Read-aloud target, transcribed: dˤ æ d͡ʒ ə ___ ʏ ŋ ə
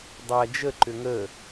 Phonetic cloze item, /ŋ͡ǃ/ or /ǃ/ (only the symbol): ǃ